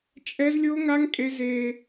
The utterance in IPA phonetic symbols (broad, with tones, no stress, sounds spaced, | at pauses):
t͡ʃʼ ɛ˦ z lʲ o˦ ŋ a˦ ŋ kʼ e˦ z e˦